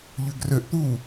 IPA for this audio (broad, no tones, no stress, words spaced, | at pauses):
ʎøɡrøʔt̪uː